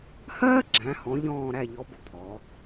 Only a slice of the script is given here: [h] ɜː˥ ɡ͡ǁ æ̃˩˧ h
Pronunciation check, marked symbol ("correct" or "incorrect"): correct